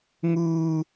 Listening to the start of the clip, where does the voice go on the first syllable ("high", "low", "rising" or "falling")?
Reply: high